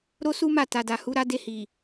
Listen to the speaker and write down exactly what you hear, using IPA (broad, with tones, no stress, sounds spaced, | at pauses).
ɾ o˦ s u˦ m a˦˨ t a˨ d a˨ h u˨˦ ɾ a˦ d e˧ h i˨